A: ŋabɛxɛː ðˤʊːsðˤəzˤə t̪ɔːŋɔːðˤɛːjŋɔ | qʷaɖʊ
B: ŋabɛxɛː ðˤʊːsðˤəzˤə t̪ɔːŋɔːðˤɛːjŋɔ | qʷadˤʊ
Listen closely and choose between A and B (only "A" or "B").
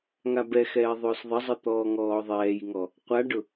A